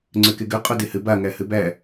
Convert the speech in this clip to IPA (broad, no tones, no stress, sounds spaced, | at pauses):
ŋ͡ǀ ø k e ɡ ø qʼ o d e h ɘ b a ŋ æ h ɘ b æ